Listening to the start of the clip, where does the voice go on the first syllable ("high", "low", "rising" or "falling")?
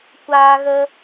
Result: high